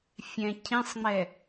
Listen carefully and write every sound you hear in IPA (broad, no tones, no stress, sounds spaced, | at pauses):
fʲ ɛ̃ cʰ ĩ sˤ ŋ͡m ɛ